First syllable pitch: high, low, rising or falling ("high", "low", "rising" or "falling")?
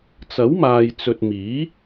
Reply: rising